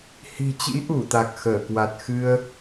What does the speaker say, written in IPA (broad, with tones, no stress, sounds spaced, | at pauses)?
h i̤˨˩ t͡ɕ ḭ˧˥ ʔ u˧˩ t̪ a˨˩ k̚ x əː˧˩ k w a˨˩ t̚ x ɨ˧ ə̯